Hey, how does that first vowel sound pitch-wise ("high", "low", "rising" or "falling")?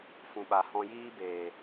low